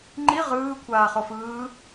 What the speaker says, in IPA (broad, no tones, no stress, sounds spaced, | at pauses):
ŋ͡ǃ i ʁ ɯː kʷʰ aː χ o f ɯː